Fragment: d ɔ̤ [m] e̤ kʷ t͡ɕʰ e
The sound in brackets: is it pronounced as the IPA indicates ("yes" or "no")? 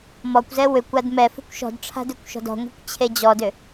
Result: no